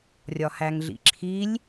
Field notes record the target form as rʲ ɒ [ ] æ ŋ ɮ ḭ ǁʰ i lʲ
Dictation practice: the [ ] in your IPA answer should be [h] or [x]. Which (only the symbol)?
h